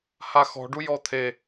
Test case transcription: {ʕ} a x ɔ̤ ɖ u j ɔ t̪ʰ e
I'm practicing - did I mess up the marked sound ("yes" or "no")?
yes